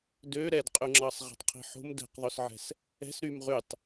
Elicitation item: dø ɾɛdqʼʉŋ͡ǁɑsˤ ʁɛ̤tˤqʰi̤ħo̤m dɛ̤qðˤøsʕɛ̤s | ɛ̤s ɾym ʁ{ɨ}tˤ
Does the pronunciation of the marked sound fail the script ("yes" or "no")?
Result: yes